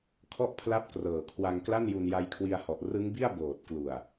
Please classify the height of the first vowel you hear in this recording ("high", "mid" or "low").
mid